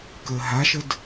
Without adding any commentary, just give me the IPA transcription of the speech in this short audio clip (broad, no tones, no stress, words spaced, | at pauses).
kəːɦaʃəd